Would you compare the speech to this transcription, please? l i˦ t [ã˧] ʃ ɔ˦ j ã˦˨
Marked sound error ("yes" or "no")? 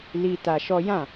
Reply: yes